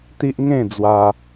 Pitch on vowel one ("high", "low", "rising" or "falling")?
high